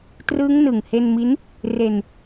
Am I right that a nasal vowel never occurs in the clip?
yes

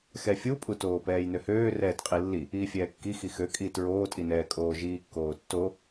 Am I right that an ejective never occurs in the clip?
no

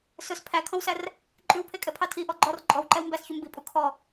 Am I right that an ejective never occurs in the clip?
no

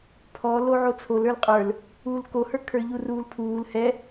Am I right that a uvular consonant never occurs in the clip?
no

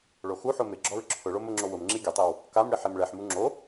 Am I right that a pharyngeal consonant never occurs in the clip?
no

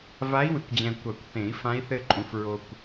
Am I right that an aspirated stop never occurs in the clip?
yes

